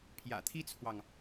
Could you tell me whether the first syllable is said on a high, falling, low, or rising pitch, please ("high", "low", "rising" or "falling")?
low